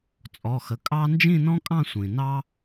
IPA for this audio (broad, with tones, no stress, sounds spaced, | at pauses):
t͡sʼ ɔ˩˧˩ x ə˩˧˩ kʼ ɑ˥ n d͡ʒ ĩ˥˧ n ɔ̃˥ kʼ ɑ̃˥˧ sʷ ĩ˩ n ɑ˥